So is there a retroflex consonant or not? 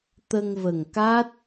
no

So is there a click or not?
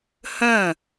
no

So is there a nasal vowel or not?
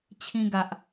yes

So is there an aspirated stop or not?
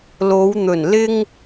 no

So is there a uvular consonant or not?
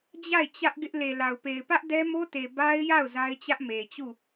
no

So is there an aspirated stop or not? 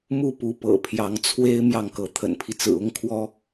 yes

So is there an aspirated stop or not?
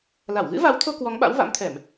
yes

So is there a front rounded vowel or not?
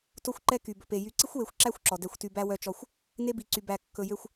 yes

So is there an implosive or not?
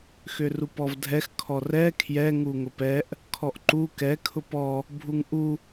no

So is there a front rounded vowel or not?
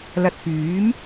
yes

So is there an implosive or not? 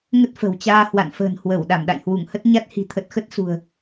yes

